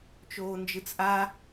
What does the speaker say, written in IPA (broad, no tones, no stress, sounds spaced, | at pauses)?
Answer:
t͡ʃ oː n d͡ʒ ɯ t͡s ʔ a